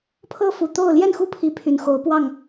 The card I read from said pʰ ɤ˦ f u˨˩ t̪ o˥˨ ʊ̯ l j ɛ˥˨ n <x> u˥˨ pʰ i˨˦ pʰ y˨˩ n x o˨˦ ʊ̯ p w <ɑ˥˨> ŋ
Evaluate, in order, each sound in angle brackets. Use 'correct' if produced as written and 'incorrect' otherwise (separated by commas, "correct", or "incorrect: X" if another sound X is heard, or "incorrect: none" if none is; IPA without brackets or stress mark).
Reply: correct, correct